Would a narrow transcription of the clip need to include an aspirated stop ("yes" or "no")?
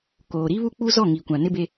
no